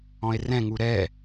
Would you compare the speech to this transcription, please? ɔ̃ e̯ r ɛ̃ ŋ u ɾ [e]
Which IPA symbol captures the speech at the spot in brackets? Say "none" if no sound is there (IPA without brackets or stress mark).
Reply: ɛ